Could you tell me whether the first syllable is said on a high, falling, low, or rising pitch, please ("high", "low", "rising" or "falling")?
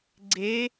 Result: rising